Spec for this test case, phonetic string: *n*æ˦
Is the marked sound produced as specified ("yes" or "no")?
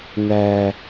yes